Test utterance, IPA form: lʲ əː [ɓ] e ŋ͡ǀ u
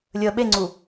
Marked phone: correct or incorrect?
correct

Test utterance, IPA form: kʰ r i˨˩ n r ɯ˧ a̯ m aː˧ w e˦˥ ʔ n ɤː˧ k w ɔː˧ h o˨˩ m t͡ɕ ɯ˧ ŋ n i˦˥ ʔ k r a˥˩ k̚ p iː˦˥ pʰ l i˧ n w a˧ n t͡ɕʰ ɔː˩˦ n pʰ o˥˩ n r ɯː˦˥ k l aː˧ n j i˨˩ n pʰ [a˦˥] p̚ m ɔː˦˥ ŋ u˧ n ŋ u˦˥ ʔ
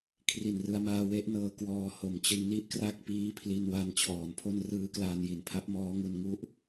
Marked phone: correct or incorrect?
correct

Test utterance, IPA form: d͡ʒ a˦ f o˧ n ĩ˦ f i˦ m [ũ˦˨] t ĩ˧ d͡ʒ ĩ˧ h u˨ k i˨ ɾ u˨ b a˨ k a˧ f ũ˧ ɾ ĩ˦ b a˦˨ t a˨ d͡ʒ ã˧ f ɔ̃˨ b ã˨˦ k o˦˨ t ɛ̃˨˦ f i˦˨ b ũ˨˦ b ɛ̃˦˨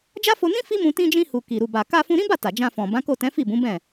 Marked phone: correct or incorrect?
incorrect: ũ˧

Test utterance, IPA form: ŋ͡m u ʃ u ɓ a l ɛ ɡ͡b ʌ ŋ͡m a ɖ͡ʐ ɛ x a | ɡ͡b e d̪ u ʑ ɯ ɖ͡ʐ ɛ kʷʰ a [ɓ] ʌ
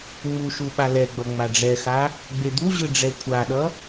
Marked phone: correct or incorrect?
incorrect: ɗ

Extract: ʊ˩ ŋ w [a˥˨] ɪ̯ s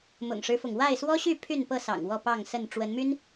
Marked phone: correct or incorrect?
correct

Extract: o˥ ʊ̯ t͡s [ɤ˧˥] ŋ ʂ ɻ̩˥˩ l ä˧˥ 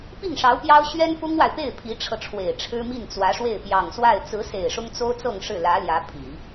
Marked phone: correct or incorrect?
incorrect: ɤ˥˧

